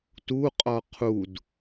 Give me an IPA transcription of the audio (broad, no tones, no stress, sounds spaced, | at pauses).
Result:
t u qʼ ɔ qʰ u d